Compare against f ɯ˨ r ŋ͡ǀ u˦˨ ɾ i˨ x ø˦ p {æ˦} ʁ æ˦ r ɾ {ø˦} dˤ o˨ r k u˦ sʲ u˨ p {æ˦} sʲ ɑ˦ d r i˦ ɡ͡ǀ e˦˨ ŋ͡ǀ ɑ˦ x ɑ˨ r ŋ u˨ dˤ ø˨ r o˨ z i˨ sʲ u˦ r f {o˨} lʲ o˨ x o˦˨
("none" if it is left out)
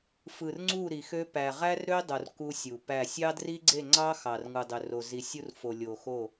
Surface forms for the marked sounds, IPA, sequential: æ˨, ø˦, æ˦˨, o˨

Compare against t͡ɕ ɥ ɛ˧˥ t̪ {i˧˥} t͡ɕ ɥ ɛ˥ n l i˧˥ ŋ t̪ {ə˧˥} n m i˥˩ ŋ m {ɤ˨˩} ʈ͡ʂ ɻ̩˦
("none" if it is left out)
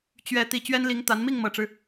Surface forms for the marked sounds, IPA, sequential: i˨˩, a˧˥, ɤ˨˩

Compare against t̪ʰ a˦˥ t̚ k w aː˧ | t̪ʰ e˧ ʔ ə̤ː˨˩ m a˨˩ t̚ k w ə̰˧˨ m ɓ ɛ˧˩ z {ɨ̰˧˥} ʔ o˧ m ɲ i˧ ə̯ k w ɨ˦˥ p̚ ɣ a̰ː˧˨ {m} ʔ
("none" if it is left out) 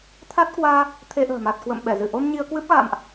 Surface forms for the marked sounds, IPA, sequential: ɨ˧˩, m

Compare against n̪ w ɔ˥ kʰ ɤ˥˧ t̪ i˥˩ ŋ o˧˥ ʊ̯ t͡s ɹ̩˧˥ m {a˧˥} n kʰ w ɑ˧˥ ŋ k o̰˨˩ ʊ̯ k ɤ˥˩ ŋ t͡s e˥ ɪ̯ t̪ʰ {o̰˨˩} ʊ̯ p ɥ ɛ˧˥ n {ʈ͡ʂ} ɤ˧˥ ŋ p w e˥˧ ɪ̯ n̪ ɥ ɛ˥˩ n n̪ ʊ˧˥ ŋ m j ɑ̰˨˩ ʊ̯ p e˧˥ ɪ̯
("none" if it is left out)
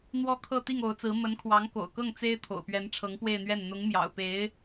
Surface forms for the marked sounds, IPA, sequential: ə˧˥, o̰˨˩, ʈ͡ʂʰ

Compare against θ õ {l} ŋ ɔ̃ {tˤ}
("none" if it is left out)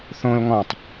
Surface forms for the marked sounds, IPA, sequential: l, tˤ

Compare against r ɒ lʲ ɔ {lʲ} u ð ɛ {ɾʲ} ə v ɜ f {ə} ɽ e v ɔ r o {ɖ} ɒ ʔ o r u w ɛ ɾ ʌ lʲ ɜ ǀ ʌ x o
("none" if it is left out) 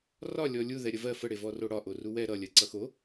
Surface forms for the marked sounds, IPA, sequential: lʲ, ɾʲ, ə, ɽ

